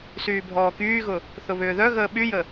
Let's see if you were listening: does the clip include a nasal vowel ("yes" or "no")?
no